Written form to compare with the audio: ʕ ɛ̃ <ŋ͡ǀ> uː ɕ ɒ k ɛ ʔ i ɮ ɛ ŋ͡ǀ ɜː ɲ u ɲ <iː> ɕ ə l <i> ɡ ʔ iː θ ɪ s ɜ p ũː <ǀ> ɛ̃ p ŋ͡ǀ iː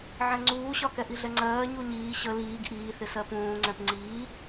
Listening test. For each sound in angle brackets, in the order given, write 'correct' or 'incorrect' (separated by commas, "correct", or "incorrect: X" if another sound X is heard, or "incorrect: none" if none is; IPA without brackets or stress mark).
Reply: correct, correct, incorrect: iː, incorrect: ŋ͡ǀ